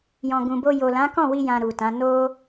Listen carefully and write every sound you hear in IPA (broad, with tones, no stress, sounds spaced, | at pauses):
j ɔ̃˨ ɡ ũ˨ b o˧ j o˨ l ã˨˦ k ɔ̃˦˨ w i˧ j ã˧ ɾ u˨ t ã˨˦ n o˦